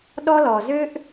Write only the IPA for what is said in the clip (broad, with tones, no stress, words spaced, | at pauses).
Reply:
ɗɔ˦lɔ˨zø˦ʔ